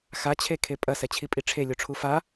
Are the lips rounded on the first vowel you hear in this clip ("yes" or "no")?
no